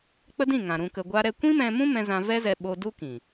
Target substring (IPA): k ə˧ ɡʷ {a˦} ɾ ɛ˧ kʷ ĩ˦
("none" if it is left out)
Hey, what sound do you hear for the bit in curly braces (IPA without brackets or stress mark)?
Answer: a˦